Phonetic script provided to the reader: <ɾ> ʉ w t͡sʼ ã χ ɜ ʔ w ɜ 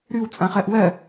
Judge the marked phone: correct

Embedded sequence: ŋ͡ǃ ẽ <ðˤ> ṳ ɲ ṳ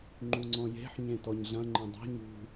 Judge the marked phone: incorrect: dˤ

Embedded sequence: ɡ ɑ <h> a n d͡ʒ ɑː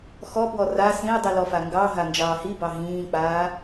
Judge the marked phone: incorrect: ɦ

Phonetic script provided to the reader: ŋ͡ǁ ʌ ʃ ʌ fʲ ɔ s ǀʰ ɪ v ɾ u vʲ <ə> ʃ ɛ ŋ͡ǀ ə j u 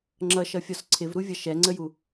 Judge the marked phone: incorrect: ʌ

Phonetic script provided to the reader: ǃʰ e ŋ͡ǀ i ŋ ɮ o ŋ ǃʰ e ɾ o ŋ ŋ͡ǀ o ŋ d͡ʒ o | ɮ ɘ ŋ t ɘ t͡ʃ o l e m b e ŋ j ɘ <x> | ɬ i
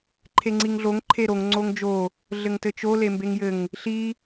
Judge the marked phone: incorrect: ŋ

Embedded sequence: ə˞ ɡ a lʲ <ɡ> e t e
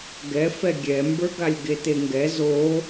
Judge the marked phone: correct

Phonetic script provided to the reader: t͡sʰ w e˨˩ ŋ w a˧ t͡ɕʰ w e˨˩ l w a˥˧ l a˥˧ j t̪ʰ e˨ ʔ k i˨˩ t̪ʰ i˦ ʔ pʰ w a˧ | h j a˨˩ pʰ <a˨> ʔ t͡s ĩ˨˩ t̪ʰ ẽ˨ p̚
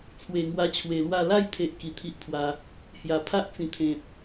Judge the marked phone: incorrect: a˦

